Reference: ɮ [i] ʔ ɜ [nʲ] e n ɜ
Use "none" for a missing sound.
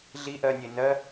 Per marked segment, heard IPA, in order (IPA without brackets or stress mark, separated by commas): i, nʲ